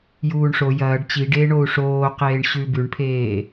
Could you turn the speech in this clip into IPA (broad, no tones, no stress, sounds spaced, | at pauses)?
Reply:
j uː ɳ ʂ o j ɐː ɖ t͡ɕ i ɖ eː ɳ o u̯ ʂ oː q eː ɳ ɕ ʉ b ʉ ɳ pʰ eː